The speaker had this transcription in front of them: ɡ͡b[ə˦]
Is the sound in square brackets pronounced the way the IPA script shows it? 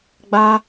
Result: no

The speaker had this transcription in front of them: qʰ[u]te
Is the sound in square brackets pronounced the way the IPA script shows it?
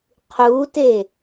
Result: yes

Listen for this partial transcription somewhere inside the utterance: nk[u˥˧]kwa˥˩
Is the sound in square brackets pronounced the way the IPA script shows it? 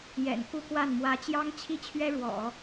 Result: yes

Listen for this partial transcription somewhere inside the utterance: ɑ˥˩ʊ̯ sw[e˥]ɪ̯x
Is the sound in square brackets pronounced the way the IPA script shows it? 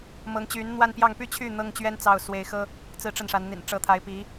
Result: no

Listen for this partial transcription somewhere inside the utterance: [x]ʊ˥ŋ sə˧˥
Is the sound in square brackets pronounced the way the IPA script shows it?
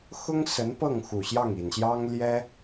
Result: yes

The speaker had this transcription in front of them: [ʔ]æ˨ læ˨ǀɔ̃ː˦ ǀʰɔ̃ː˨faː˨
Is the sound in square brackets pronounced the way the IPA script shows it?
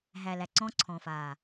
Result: no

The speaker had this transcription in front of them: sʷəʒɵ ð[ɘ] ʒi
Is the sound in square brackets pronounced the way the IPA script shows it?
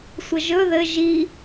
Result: yes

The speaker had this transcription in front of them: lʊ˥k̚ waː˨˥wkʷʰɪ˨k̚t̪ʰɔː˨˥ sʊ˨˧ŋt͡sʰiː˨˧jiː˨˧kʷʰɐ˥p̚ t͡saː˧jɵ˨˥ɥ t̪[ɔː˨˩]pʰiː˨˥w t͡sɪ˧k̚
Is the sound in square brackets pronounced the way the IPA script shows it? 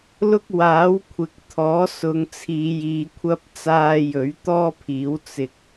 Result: no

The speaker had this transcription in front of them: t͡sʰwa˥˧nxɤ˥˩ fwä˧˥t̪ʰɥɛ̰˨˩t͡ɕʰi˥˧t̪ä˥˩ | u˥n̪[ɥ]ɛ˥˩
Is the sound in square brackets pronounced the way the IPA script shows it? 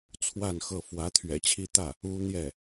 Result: no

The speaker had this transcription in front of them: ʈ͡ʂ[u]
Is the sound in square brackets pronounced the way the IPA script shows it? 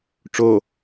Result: no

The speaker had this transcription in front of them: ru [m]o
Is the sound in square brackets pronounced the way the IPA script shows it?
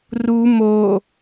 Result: yes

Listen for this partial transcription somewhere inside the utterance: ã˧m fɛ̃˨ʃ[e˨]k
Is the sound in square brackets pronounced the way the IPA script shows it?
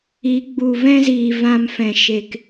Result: yes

